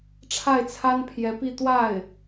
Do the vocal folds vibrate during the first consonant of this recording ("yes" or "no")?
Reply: no